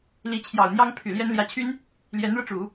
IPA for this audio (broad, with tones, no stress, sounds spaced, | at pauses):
l i˧˥ t͡ɕʰ j ɑ˨˩ ʊ̯ n̪ j ɑ˥ ŋ pʰ y˨˩ l j ɛ˥ n l j ä˧˥ t͡ɕʰ y˥ n | l j ɛ˧˥ n ɻ ɤ˧ ʈ͡ʂ u˨˩˦